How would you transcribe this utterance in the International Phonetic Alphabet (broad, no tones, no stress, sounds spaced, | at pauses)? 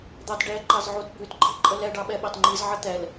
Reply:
d̪ ɑ t ɖ ɛ ǃ ɑ z ʕ u t b ʉ t ɡ͡ǃ i ǃʼ ə l ɛ ɖ ɑ ɓ ɛ ɓ ɑ t ŋ͡ǃ i z ʕ ə t̪ ɛ l